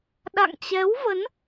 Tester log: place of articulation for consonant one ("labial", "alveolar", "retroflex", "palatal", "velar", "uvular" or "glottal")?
alveolar